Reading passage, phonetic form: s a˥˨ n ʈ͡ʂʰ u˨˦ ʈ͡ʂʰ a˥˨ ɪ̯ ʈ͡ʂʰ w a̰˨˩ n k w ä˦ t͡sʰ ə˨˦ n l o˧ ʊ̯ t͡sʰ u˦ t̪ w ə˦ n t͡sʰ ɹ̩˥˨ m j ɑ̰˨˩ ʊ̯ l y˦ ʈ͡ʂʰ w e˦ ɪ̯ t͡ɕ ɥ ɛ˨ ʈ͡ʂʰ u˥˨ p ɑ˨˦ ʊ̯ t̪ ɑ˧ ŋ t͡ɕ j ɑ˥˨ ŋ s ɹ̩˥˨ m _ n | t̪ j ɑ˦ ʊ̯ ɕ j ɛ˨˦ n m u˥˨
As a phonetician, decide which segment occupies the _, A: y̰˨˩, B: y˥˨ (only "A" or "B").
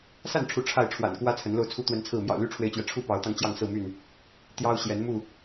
B